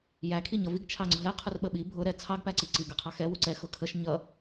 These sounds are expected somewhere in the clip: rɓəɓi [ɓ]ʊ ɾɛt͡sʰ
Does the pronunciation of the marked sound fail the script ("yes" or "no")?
yes